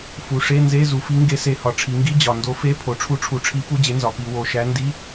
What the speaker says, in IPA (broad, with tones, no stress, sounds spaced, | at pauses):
f u˩˧ ʂ e˧˥˧ n z e˧˥˧ z u˩˧ f i˨˥ ŋ ɡ e˨˥ s e˨˩ h ɒ˨˩ ʈ͡ʂʰ i˩˧ ŋ ɡ i˧˥˧ d͡ʑ ɒ˨˩ n d o˨˥ f e˧˥˧ pʰ o˩˧ ʈ͡ʂʰ u˨˥ ʈ͡ʂʰ u˩˧ ʈ͡ʂʰ i˨˥ p u˧˥˧ d͡ʑ e˨˥ n z ɒ˩˧ p i˩˧ w o˨˩ ʃ æ˨˥ n d i˧˥˧